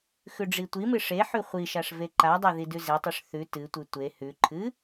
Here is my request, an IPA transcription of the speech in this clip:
x ʉ ɖ͡ʐ i tʷ i m ɨ ʂ e ħ ʉ χʷ i ʃ a ʂ v e ǃ a dˤ e ð i d ʉ z e tˤ ʉ ʂ θ ʉ t ɨ tʷ ɨ tʷ e h ʉ ǃʰ ɨ

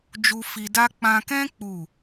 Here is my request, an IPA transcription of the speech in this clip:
d͡ʒ u˧ f i˧ d a˦ k͡p ã˧ k ɛ̃˦ k͡p u˦˨

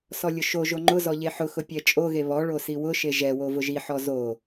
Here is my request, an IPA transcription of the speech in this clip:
s ɔ lʲ ʊ ʃ o ʒ o ŋ͡ǃ ʊ z ɔ ʎ e ħ ʊ x ʊ pʲ ɛ t͡ʃʼ o ɣ e β ɔ ɭ o s i w ʊ ʃ e ʒ ɛ w o v ʊ ʒ i ħ ɔ z o

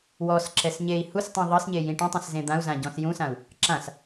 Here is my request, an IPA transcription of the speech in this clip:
w ɔ s ǁ ɛ s ɲ e i̯ h u s tˤ ĩ ðˤ ɤ s ɲ e j ĩ ʈ ũ tˤ ĩ s z ẽ d̪ ã u̯ z ã ɟ ɔ̃ s j ũ s ã u̯ | ǁ ã s

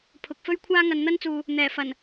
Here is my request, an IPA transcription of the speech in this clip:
pʰ ʊ˨ k̚ f ɵ˥ ɥ kʷʰ aː˥ ŋ ɐ˨ n n̪ ɐ˥ n t͡s uː˨ | n̪ ɛː˨˩ f ɐ˨˩ n

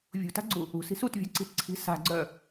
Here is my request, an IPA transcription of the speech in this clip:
vʲ ṳ t a̤ ɡ͡ǀ u | ṳ s i̤ s u t vʲ a̤ ǀ i̤ t ǀʰ i̤ s a̤ ɡ͡ǀ œ

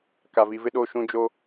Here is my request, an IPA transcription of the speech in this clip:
k a˨ v i˨ v ɪ˦ ɗ o˦˨ ʃ ũ˦ d͡ʒ o˦

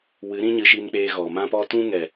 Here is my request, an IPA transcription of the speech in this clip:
w ɨ˨˦ ɾ ĩ˦ ɲ ɨ˧ ʃ i˧ n k͡p eː˧ ɣ ɔ˨ m ã˧ p ɔ˧ t ũ˦ ŋ ɛ˨

